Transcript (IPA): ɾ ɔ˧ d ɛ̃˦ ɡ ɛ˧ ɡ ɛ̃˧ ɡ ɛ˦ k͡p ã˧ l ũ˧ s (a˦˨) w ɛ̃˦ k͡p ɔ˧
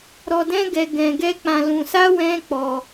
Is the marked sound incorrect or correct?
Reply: incorrect